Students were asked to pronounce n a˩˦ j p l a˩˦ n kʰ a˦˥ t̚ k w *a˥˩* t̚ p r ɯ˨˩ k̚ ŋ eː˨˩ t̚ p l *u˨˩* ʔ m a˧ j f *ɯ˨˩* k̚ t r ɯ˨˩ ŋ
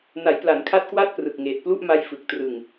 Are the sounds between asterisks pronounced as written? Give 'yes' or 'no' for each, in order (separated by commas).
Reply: yes, no, yes